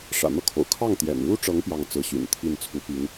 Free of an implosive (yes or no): yes